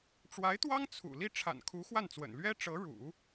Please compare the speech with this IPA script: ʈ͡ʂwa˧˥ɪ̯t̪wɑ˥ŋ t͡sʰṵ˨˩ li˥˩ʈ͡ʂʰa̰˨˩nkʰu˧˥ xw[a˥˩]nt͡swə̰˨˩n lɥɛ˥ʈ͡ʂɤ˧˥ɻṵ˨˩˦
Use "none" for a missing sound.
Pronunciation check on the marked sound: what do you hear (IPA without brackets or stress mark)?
a˥˩